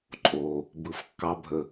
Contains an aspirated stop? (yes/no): no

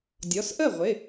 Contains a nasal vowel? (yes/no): no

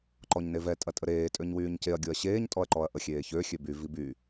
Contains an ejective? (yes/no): yes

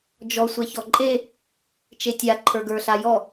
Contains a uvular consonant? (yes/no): no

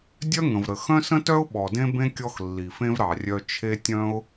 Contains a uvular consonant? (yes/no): no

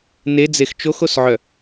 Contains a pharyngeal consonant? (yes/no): yes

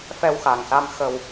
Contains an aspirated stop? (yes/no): no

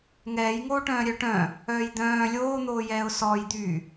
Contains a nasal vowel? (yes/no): yes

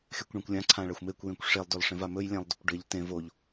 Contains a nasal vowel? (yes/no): yes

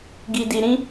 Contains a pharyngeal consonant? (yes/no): no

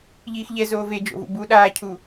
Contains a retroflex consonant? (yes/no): no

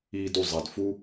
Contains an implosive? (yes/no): no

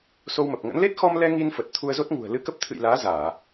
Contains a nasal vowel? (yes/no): no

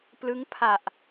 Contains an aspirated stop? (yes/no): yes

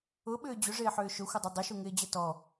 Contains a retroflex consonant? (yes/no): yes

